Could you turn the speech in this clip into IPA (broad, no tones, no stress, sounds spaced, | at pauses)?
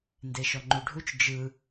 n d e ʃ ɔ ŋ͡ǃ u ɖʱ u t͡ʃ d͡ʒ ɯ